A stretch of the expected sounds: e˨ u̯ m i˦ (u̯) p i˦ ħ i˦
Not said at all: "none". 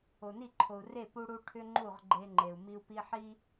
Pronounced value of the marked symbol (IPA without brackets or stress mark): u̯